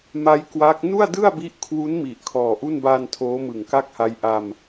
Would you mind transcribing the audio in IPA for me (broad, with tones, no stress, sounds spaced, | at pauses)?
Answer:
m a˦˥ j k w a˦˥ k̚ n u˥˩ a̯ d ɯ˥˩ a̯ b i˦˥ ʔ kʰ w u˦˥ n m i˨˩ ʔ kʰ ɔː˨˩ ʔ u˥˩ n b aː˧ n tʰ oː˦˥ m ɯ˨˩ ŋ k a˥˩ k̚ h a˦˥ j ʔ a˧ m